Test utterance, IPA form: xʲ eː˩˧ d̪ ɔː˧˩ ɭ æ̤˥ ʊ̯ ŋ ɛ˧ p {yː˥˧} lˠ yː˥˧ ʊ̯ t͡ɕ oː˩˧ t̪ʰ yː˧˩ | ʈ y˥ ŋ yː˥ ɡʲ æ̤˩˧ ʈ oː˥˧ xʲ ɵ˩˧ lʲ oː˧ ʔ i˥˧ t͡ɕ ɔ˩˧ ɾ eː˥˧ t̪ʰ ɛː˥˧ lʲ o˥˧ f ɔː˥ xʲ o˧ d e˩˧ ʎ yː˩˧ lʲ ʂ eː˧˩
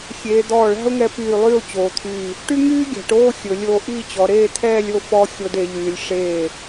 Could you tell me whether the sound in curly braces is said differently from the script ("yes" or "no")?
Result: yes